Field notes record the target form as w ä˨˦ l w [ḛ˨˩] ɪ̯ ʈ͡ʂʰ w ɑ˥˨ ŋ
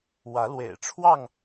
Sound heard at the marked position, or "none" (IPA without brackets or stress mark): ḛ˨˩